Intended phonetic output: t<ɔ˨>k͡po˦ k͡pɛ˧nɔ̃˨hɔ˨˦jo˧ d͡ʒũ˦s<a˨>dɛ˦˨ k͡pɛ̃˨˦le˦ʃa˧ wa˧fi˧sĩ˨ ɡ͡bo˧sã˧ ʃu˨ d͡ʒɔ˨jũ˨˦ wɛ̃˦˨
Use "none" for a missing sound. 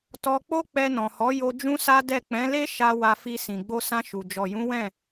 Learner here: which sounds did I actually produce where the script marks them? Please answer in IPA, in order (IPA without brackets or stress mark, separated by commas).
ɔ˧, a˦